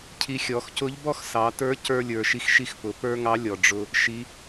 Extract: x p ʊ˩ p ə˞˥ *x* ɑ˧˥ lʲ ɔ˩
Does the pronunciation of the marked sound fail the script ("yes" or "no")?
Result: yes